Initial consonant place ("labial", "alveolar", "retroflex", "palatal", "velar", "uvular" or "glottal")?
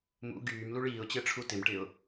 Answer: labial